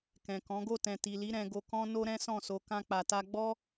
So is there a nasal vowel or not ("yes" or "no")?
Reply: yes